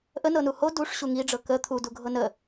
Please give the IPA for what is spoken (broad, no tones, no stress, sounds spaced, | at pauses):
ʔ ə n ɤ n u h o d u ʂ ɕ u ŋ i ɖ͡ʐ ɤ k ə t̪ʰ u d u ɡʱ ɤ n ə